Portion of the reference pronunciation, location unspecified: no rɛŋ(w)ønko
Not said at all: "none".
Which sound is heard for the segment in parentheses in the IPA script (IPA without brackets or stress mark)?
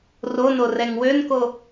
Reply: w